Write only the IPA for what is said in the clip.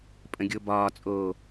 pʼ ə̃ ɡʲ o b ɒː t͡sʼ oː

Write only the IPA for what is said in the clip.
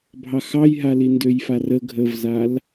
bʱ ɑ x ɑ j ɦ a l i n d ø j f a r ə ɡʱ ə v z a l

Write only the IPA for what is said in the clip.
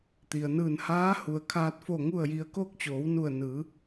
t̪ i˩ ə̯ n ɯː˧˩ n h aː˧˥ h u˩ ə̯ kʰ aː˧ t̚ f o˧˩ ŋ u˥˨ ə̯ j i˧ ə̯ k oː˥˨ k̚ t͡ɕ oː˩˧ w n u˧˩ ə̯ n ɯː˩˧

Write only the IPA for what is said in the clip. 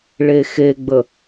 ɭ e x e ɡ͡b ə

